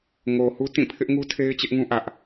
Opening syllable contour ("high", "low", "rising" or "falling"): low